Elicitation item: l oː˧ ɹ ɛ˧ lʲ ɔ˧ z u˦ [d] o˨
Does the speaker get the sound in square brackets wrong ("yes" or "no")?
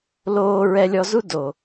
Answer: no